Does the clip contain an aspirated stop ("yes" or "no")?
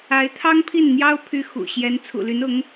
yes